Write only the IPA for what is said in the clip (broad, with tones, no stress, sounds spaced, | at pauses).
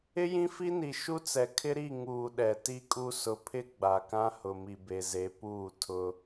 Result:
ɪ˦ j ĩ˦ f i˦ n i˨ ʃ u˦ t͡s ɛ˨ kʰ ɪ˦ ɾ i˦˨ ŋ uː˨ ɗ ɛ˨ t i˦ kʼ u˦ s ʊ˨ pʰ ɪ˦ ɡ͡b a˨ k ã˦ h ʊ˨ m i˨ b e˨ z e˨˦ p uː˦˨ tʰ ʊ˦